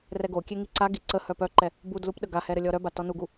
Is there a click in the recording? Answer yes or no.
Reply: yes